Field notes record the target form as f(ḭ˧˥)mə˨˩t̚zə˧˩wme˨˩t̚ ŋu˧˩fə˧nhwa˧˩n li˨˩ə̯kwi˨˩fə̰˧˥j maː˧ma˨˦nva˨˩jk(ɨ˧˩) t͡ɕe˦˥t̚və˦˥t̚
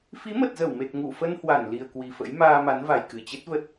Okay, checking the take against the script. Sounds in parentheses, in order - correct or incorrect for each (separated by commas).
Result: incorrect, correct